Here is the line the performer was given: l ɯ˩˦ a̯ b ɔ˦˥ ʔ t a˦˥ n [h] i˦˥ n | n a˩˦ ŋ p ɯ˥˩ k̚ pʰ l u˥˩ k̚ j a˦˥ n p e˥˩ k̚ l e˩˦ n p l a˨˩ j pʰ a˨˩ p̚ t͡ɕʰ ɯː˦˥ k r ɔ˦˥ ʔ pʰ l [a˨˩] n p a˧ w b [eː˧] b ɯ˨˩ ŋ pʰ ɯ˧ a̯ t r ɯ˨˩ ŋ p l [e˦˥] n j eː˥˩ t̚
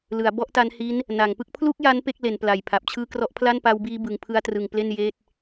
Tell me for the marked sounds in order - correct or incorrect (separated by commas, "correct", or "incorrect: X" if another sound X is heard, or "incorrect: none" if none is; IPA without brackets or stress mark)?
correct, incorrect: a˥˩, incorrect: iː˧, incorrect: e˥˩